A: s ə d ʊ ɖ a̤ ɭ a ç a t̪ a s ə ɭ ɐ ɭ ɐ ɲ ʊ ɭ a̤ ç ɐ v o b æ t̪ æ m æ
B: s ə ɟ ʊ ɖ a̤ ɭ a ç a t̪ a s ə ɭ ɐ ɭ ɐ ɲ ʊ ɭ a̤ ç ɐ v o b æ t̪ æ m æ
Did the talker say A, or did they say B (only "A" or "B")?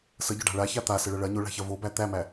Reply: B